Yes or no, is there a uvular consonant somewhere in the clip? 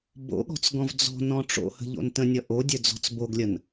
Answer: no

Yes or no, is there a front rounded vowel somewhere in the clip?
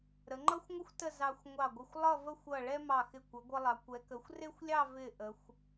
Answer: no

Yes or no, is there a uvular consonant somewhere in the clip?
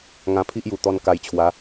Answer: no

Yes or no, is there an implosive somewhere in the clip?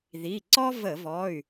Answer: no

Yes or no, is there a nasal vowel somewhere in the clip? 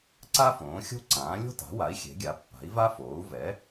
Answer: yes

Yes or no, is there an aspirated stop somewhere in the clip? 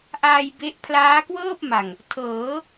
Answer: yes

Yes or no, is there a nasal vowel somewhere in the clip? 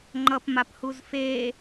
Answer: no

